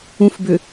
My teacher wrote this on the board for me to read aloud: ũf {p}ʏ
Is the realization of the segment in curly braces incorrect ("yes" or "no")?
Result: yes